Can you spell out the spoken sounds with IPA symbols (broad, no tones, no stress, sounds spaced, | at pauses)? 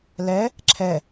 l ɛ | ǁʰ ɛ